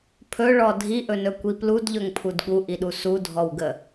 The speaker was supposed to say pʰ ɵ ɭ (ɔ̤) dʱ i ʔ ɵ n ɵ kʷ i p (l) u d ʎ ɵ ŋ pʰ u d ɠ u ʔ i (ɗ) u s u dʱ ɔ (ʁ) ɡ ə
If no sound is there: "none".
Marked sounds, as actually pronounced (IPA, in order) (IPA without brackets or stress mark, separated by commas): ɔ, l, ɗ, w